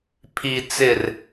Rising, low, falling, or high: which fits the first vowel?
low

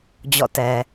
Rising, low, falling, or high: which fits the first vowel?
falling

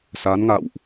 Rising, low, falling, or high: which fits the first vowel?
rising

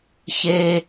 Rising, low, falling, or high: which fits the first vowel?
high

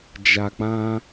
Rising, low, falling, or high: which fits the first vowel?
low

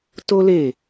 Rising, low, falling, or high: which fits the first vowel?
high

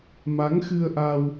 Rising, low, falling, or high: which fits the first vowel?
rising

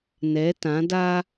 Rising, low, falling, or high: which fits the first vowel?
rising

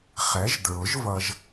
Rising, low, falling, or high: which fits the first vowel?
rising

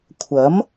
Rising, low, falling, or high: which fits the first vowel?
rising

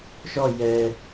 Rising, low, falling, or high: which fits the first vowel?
falling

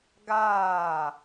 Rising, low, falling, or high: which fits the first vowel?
falling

